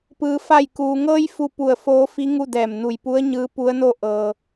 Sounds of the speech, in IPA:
p ɯː˩ f a˧˩ j k uː˩ ŋ ɤː˧ j f u˧ p u˧˩ ə̯ f oː˧˥ f i˧˥ ŋ u˥˨ d ɛː˧˩ m n u˧˩ j p u˧˥ ə̯ ɲ ɯː˧˥ p u˧˥ ə̯ n o˥˨ ʔ ɤː˩

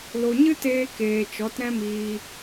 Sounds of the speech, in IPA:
l o˨ ɲ ɨ˦ t eː˧ k eː˨ t͡ʃ ɔ˨˦ t ɾ ɛ̃˦ m iː˧

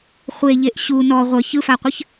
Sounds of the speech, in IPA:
χʷ e ʎ e ʔ ɕ u n ɔ ʁʷ ə ç ɯ f a qʷ ɘ ç

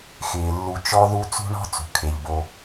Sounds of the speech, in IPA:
x ɪː˩ lː u˨ t͡ʃ ɔ˦ ð u˦ t͡s ṳ˥ ɳ ɔ̤˥ t͡s ṳ˩ kʰ e˩ ʎ b o˨

